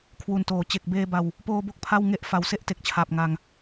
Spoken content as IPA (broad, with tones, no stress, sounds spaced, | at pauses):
kʰ w u˨˩ n t oː˨˩ t͡ɕ e˨˩ k̚ b eː˧ b a˧ w | p oː˧ b o˥˩ k̚ pʰ a˥˩ w ŋ e˥˩ ʔ f a˧ w s e˦˥ ʔ t e˨˩ k̚ t͡ɕʰ aː˨˩ p̚ ŋ a˧ ŋ